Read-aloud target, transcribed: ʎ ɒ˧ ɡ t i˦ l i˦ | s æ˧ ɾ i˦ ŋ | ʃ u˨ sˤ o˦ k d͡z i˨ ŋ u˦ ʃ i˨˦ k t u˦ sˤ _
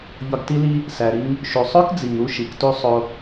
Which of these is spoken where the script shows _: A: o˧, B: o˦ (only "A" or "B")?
A